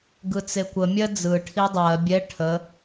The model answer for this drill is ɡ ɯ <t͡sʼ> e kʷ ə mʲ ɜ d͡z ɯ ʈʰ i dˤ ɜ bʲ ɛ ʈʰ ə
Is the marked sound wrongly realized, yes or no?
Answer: yes